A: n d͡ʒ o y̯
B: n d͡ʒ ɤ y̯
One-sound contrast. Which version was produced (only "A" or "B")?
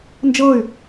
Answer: B